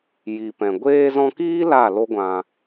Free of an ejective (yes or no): yes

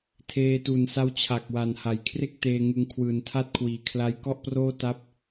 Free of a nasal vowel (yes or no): yes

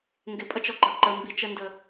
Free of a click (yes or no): no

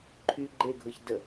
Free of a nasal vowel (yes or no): yes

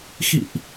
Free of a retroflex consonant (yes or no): yes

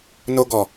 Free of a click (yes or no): yes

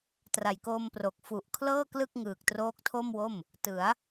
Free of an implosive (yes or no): yes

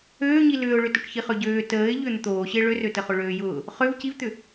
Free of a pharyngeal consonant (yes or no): yes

